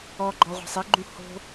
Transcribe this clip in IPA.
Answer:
ɔ ɡ͡ǃ ɔ ʁʷ a̤ sˤ i ɡ͡ǃ ũ h o̤

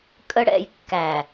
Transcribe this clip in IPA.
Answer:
kʼ ə˦ ɽ ɛ̰˧ j kː æ˨

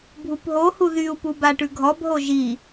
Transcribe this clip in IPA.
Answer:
bʱ u p ɦ o h u ð y u̯ p u b a ʈ ʉ ɡʱ ɔ b ɦ o ʒ i

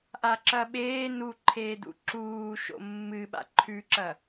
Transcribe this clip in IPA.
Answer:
ʔ a ǁ ɐ ɓ eː n u ǃʰ eː d ṵ ǁ uː ʃ o̰ mː ɨ ɓ a̰ ǃʰ ʉ ǁ ɐ

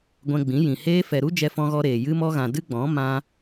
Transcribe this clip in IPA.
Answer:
ɡʷ ɛ̃˧ ɡ͡b ĩ˨˦ j ĩ˨ h eː˧ f ɛ˨ ɾ u˦ d͡ʒ ɛ˧ f ɔ̃˧ ɣ ɔ˧ ɾ eː˨ j ɨ˧ m ɔ˧ ɣ ã˨ d ɨ˦ ɡ͡b ɔ̃˨˦ m ã˧

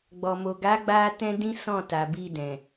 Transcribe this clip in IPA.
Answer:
ɡ͡b ɔ˨ m o˨ ɡ a˨˦ ɡ͡b a˧ t ɛ̃˦ d ĩ˦ s ɔ̃˦˨ t a˨ b i˧ d ɛ̃˨

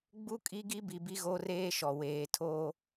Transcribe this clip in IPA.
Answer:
ɡ͡b u˦ kʼ i˦ ɡ i˦ b i˨ b i˦ ɣ o˦ r eː˦ ʃ ɔ˨ w eː˨ tʰ o˦

